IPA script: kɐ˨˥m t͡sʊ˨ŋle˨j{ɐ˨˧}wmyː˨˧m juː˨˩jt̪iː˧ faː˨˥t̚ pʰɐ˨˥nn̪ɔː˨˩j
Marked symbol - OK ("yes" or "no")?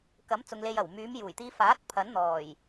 no